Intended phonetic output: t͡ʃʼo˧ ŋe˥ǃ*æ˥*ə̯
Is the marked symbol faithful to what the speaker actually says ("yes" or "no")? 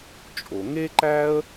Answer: yes